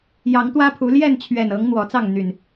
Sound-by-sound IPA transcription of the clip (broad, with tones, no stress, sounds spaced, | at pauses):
j ɑ˨˦ ŋ t̪ w ä˦ pʰ u˨˦ l j ɛ˥˨ n t͡ɕʰ ɥ ɛ˨˩ n ɤ˨˦ ŋ n̪ w ɔ˨˦ t͡s ɑ˥˨ ŋ n̪ y˨˩ n